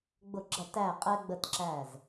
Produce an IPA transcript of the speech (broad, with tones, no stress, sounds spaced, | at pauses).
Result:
ɡ͡b ʊ˧˩˧ ɡ͡ǁ ɐ˧˩˧ t æ˧˩ qʼ ɛ˧ ɡ͡b ə˧˩ t ǁ æ˧˩ z